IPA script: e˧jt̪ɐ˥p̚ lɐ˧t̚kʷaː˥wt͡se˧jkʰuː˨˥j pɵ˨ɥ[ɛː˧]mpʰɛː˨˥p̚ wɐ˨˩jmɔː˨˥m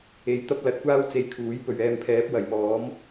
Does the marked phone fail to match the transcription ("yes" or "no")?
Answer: no